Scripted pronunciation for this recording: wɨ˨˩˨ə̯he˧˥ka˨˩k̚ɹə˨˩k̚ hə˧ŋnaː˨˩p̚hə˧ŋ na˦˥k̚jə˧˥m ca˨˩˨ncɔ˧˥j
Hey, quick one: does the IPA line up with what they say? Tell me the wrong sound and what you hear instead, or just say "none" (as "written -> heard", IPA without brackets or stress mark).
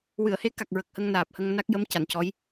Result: none